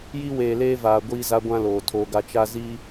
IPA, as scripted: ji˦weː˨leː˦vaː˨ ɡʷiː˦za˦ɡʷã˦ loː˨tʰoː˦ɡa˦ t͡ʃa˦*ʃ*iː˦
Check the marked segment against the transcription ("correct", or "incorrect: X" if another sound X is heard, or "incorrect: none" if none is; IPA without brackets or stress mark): incorrect: z